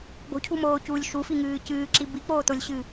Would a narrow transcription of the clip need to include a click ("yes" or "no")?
yes